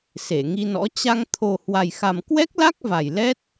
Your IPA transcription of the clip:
se˧˩ŋi˧nɔ̰˧˥ t͡ɕa˧ŋ t̪ʰo˨˩hwa˨˩jxa˨˩m kwɛ˦˥k̚la˦˥k̚ va˨˩j lɛ˦˥t̚

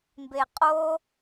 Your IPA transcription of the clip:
mbeqʼo

